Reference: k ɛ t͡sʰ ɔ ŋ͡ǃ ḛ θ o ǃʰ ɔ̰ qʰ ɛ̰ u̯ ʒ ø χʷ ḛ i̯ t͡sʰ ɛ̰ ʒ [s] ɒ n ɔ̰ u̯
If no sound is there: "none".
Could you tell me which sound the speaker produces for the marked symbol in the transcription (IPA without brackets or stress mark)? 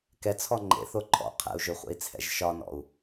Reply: ʃ